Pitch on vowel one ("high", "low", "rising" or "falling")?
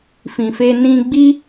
low